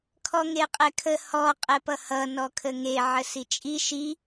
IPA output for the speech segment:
kʰ ɔ ŋ e qʼ ɛ kʰ ə h ɔ qʼ ɛ p ʌ h ʌ n ɔ kʰ ə ŋ e ʕ ə s i t͡ʃʼ i ʃ i

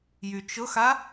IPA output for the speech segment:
j y t͡ʃ ʊ x a

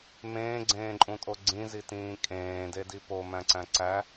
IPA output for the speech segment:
m ẽː ɡ͡ǀ ẽː ǃʼ ũ tʼ o ɡ͡ǀ ĩ z i t ĩː kʼ ẽː d e d i p o m æ̃ ǀ æ̃ ǀ æ

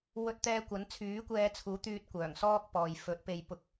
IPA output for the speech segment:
w ɵ˧ t̚ t̪ ɛː˧ kʷ ɐ˨˥ n t͡sʰ yː˨˥ kʷ ɛː˧ t͡sʰ uː˨˥ t̪ yː˧ t̚ kʷ œː˨˩ ŋ s ɔː˥ k̚ p ɔː˨ j f ɵ˨˥ t̚ p e˧ j p ʊ˧ k̚

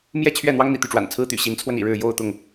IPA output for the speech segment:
m j ɛ˥˨ t͡ɕʰ ɥ ɛ˥˨ n̪ w ɑ˦ ŋ n̪ ḭ˨˩ t̪ y˥˨ ʈ͡ʂ w a̰˨˩ n t͡sʰ ɹ̩˦ t̪ y̰˨˩ ɕ i˨˦ n t͡sʰ w ə˧ n ḭ˨˩ ɻ ɻ̩˥˨ j o˥˨ ʊ̯ t̪ ʊ˥˨ ŋ

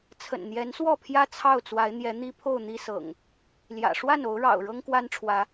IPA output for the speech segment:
t͡sʰ ə̰˨˩ n n̪ j ɛ˨˦ n s w ɔ˥˨ pʰ j ä˦ t͡sʰ ɑ˥˨ ʊ̯ t͡s w a˨˦ ɪ̯ n̪ j ɛ˨˦ n̪ i˦ pʰ o˥˨ ʊ̯ n̪ i˦ s ɤ̰˨˩ ŋ | l j ä̰˨˩ ʂ w a˥˨ n o˨˦ ʊ̯ ɻ ɑ̰˨˩ ʊ̯ ɻ ɤ˦ ŋ k w a˦ n ʈ͡ʂʰ w ä˨˦

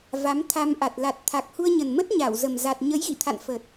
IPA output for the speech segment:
v a˨˦ m t̪ʰ a˧ m ʔ a˨˩ t̚ l a˨˩ t̚ t̪ʰ a˨˩ k̚ h u˧ ə̯ ɲ ə˨˩ n m ə˦˥ t̚ ɲ a˧˩ w z ə˨˩ m z a˨˩ t̚ ɲ ə˨˦ j ɣ ḭ˧˨ t̪ʰ a̰˧˨ n f ə˨˩ t̚

